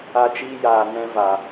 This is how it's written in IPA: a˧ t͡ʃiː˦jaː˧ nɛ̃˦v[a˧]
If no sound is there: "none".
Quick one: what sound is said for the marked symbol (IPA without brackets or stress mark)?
a˧